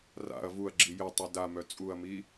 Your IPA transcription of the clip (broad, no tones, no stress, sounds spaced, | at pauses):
r a̰ ɐ̯ v u ɐ̯ ɡ͡ǁ i j ə tˤ i d a m œ t͡sʼ u ɐ̯ m i